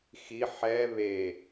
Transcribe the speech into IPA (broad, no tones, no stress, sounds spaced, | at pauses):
x i ħ ɛ β e